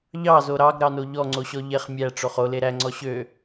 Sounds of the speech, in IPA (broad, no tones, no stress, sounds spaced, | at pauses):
ʎ ɑ z o ɾ ɑ ɡ ɾ ɑ n o ʎ ɔ ŋ͡ǀ o ɕ ɔ ʎ e χ mʲ æ ʈ͡ʂ o χ o l e ɾ æ ŋ͡ǀ ɔ ɕ ø